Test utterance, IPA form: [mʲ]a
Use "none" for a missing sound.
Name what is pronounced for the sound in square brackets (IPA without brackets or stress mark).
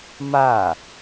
m